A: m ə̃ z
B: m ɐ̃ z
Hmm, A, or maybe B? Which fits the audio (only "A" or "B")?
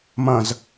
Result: B